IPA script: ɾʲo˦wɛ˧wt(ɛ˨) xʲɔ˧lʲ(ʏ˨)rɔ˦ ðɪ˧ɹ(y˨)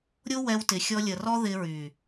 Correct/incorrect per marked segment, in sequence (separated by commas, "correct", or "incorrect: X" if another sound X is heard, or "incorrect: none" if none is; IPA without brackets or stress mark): incorrect: ɪ˨, incorrect: ə˨, correct